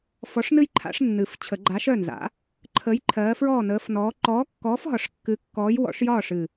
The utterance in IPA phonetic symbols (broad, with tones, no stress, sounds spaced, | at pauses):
f ɔ˨˥ ʂ n ɨ˦ j ǃʰ a̰˨˥ ʂ nː ɨ˨˩ f t͡ɕʰ ə˨˩˦ ɡ͡ǃ a˨˥ ʃ œ˥˩ n z a̰˨˥ | ǃʰ ə˨˥ j ǃʰ ɜː˨˥ f ɹ ɔː˥˩ n əː˨˥ f n ɔː˨˥ ǃ ɔː˨˥ kː ɔː˨˥ f ɦ ɒ˨˩˦ ʂ kː ɨ˨˥ kː ɔː˨˥ j w ɔ̰˨˥ ʂ j ɒː˥˩ ʂ ɨ˨˩